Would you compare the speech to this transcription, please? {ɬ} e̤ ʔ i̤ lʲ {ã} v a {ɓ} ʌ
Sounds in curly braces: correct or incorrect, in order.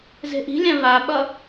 incorrect, correct, correct

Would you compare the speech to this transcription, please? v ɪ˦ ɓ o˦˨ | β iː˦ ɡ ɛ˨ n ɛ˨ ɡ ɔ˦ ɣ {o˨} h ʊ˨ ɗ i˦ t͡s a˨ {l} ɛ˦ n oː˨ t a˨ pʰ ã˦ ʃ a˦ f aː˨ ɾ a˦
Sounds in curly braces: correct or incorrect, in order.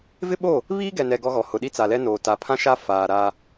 incorrect, correct

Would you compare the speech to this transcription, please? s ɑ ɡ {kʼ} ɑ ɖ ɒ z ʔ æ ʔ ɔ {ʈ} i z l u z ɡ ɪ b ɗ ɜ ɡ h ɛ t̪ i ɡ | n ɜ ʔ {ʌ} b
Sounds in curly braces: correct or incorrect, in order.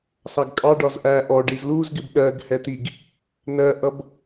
correct, incorrect, correct

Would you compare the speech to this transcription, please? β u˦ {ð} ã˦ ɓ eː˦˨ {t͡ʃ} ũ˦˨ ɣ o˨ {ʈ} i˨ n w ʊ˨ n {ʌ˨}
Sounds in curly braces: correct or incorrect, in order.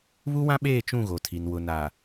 incorrect, correct, incorrect, incorrect

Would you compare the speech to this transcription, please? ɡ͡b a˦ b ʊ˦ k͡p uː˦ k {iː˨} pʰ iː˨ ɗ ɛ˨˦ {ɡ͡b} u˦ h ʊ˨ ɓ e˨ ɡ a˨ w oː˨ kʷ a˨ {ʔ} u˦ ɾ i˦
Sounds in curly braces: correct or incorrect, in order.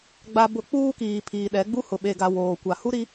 correct, correct, incorrect

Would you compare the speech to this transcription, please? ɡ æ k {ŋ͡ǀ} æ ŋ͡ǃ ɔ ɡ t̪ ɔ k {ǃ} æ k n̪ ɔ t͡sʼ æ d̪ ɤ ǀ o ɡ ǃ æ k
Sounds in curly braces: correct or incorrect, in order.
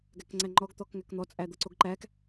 correct, incorrect

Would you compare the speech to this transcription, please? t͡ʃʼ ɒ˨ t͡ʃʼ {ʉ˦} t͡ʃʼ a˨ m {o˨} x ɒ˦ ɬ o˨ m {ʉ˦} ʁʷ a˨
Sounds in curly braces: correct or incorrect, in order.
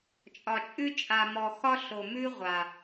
correct, incorrect, correct

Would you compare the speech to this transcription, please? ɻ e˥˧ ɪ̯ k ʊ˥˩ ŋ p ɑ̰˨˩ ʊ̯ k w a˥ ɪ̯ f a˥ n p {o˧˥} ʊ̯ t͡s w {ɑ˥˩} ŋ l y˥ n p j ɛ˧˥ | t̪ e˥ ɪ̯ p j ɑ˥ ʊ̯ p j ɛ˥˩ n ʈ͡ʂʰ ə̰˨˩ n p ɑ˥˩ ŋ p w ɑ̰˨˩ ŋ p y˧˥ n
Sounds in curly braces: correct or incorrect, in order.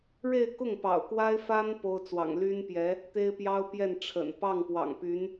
incorrect, incorrect

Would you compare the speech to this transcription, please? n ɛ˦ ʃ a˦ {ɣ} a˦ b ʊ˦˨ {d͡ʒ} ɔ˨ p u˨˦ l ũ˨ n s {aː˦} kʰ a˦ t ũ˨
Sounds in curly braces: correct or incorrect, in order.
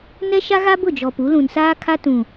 correct, correct, correct

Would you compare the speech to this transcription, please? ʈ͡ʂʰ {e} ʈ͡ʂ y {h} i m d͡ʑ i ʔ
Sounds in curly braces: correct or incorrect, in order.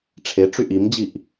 correct, incorrect

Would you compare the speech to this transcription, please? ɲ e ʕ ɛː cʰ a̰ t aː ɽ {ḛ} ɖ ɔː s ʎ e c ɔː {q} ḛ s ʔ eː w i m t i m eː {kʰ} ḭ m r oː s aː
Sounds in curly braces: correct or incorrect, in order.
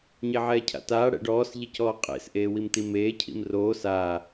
incorrect, incorrect, incorrect

